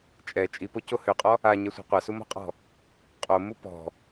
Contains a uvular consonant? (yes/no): yes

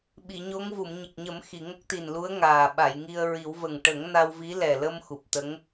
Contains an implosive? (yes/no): yes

